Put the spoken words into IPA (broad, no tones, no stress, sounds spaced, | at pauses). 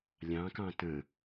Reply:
lʲ ɑ̃ k ɑ̃ t ə̃